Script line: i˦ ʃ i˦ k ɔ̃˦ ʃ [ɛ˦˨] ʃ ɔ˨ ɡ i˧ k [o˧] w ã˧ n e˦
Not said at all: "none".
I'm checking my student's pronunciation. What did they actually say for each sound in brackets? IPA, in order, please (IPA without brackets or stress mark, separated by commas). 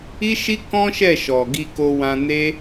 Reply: ɛ˦˨, o˧